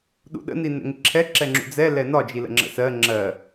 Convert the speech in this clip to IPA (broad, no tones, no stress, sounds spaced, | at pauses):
ɗ ṵ ɗ ə̰ n i n ɛ̰ ŋ ɪ ǁʰ ɛ ǁ ɛ ŋ͡ǁ ṵ d͡z ɛ l ɛ n ɒ d͡ʒ i l ə̰ ŋ͡ǁ ə̰ s ɜ ŋ͡ǁ ɜ